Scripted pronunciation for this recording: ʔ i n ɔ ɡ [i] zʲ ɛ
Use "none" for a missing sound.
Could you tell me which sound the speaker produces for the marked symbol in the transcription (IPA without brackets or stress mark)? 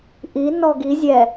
i